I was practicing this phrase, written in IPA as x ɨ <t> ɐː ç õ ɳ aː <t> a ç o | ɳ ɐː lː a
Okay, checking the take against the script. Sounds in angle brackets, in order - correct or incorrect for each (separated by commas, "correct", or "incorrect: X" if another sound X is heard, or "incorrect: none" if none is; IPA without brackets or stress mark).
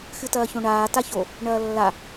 correct, correct